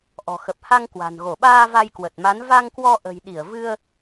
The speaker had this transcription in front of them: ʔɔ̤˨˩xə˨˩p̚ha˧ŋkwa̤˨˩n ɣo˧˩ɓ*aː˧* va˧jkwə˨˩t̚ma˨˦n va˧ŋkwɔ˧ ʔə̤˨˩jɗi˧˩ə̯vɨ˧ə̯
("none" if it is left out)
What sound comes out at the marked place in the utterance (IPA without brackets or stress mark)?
aː˧